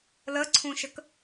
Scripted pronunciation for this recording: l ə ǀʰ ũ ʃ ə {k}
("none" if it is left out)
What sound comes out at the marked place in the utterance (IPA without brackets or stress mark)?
k